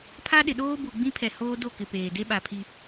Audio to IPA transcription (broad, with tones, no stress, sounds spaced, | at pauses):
pʰ a˦ ɗ ɪ˨ ɗ oː˦ b u˨ ɡ͡b ĩ˦ pʰ ɛ˨ h oː˦ d o˦˨ k ɪ˨ p eː˨ d e˦ ɓ a˨ pʰ i˦